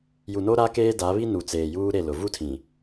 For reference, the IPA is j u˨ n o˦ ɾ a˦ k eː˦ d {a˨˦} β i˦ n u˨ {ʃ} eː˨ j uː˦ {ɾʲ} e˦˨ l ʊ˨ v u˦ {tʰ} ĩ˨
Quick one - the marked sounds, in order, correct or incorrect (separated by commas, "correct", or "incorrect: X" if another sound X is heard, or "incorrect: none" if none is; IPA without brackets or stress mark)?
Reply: correct, incorrect: t͡s, incorrect: ɾ, correct